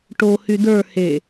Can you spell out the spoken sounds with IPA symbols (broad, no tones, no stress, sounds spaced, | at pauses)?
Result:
ʈ o h y d ə˞ h e